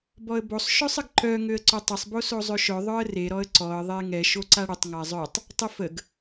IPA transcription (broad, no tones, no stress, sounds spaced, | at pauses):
b ɔ ə̯ b o sˤ ʃ œ sˤ ə ɡ ǃ œ ŋ ø ə̯ ǀ ø tˤ ə sˤ b o s o zˤ ø ʃ œ ðˤ œ ə̯ r e ɾ ɔ ə̯ ǀ ɔ ə̯ ðˤ e ŋ ɛ ʃ o ǀ a ɽ ə tˤ ŋ a zˤ œ tˤ | tˤ i f ə ɡ